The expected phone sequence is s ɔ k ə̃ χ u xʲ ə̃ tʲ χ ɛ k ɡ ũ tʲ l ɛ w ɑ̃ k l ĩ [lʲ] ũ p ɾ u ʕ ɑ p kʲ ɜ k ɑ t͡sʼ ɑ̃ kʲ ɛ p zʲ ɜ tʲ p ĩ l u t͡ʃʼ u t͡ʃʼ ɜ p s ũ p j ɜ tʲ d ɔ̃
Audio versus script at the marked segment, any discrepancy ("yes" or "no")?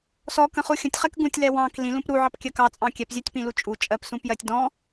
yes